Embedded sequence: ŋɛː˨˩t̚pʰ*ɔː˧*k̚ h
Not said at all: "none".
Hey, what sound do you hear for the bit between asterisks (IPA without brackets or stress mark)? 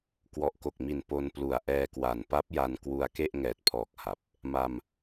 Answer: ɔː˨˩